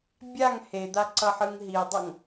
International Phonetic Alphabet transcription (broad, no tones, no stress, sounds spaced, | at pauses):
bʲ a ŋ h e d̪ a ǀ ʌ ħ ɯ ŋ ɦ i dˤ ʌ ŋ